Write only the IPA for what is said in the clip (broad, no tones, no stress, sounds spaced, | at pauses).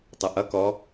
tˤ ʌ ʔ ʌ k ɔ